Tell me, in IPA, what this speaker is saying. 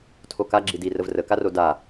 tʰ o k a ɡ͡ǁ i d i r ə v r ə k a r o d a

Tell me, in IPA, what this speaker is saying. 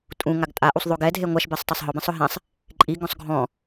tʼ ũ ŋ a ɡ tʼ a ʔ u sˤ ðˤ o ɡ ɛ dʱ e ŋʷ a ʃ b i sˤ tˤ e sˤ ɦ ɔ b ɛ̃ sˤ ʊ ɦ ɛ̃ sˤ | ǃʼ i ɡ ɔ̃ sˤ ɡʱ ɔ̃

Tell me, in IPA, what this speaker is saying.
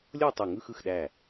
lʲ o˥˧ tˤ ø˧˩ ŋ ɯ˥˧ x ɯ˧˩ x ɗ æ˧˩

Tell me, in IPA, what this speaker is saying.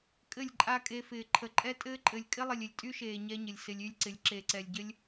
kʼ ɘ˦˨ lʲ ǃʼ a˦ kʼ e˧ f ɪː˨ ǃʰ ə˨ ǃʼ ɛ˦ tʼ ɘː˦ ǃʼ ɘ˨ lʲ kʼ ɪ˦ lˠ ɪ˨ lʲ ɪ˨ lʲ tʼ y˦ ʃ eː˨ ɲ ɛ˦ ɲ ɪ˨ lʲ s ɪ˧ lʲ y˦ lʲ ǀ ɪ˨˦ lʲ ǁ e˨ ǀ ɛ˨ lʲ ɟ ɘ˦ lʲ

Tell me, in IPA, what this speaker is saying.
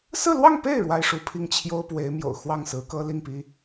s ɹ̩˥˧ l w ɑ˥˧ ŋ p e˥˩ ɪ̯ ɻ w a˥ ɪ̯ ʂ u˧˥ pʰ i˥˩ ŋ t͡ɕʰ j o˥ ʊ̯ p w e˧˥ ɪ̯ m j o̰˨˩ ʊ̯ x w ɑ˥˩ ŋ s ɹ̩˧˥ k ɤ˥ l i˥˩ ŋ p i˥

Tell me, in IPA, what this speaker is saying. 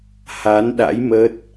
h a˨˦ n ɗ a̰˧˥ j m ə˦˥ t̚

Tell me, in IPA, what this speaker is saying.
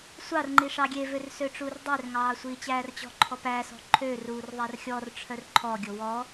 sʷ ɑ r ŋ͡ǃ i ʂ ɑ ɡʲ e v ø r s ø ʈ͡ʂ uː r dˤ e r ŋ ɑː sʷ iː t͡ɕ æː r t͡ɕ ɔ̤ ǃʰ ɔ p æ s ɔ̤ ǃʰ ø r uː r ðˤ æ r xʲ ɔ r ʈ͡ʂʰ œ r ǃʰ ɔ ɡʲ o w ɔ

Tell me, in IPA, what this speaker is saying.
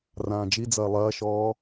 r ãː d͡ʒ i d͡z ɐː lˠ ɐː ʃ ɔː

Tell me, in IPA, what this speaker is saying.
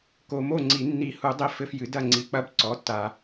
k o˨ m o˥˩ ŋ͡ǀ i˨˩˦ nː i˨˩˦ h u˨˩˦ dˤ i˦ f ɘ˦ f j ɨ˩˥ d ɐ˥˩ ŋ͡ǀ i˨ k͡p ɐ˦ b ǀ ɔ˩˥ tː a˨

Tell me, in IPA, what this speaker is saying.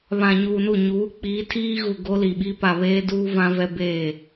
β ã˨ ɲ uː˨ n u˦˨ ɲ uː˨˦ k͡p iː˨˦ tʰ iː˦ ɣ u˨ ɡ o˦ l i˨ ɓ i˦ p a˨ β eː˦ d uː˦ v ã˦ v ɛ˦ b eː˦˨

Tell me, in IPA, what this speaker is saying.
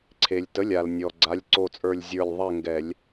ǀʰ e˩ lʲ t ə˩˧˩ lʲ a˩ l nʲ ɔ˩ ɡ͡ǀ a˩˧˩ lʲ ǀ o˧˩ t͡sʼ ə˞˧˩ lʲ zʲ ə˞˧˩ lʲ ðˤ ɛ˥˨ ŋ ɡ ɛ˧˩˧ lʲ

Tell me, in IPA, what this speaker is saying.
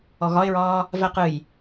ɔ ɣ ɒ ɪ̯ ɹ ɒː | v ɛ q ɨ j

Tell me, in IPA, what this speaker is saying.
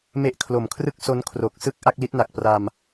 m e˦˥ ʔ kʰ l o˨˩ m kʰ r ɯ˥˩ k̚ s o˦˥ n kʰ r o˨˩ k̚ s ɯ˥˩ k̚ ʔ a˥˩ k̚ l i˦˥ t̚ n a˨˩ k̚ p r a˧ m

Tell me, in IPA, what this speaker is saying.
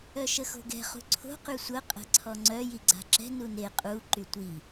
œ ʃ ə x o̤ ɡ ɛ̤ χ ṳ ǀʰ o̤ q y sʷ ə qʼ ɛ̤ ǀʰ ɔ ŋ͡ǀ œ j i ɡ͡ǀ a̤ ǁ ɛ̤ n u n e qʼ u ǃ y tʷ i

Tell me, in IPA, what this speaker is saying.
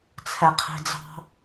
t͡sʰ ɛ qʰ i̤ d͡z ɑ̤

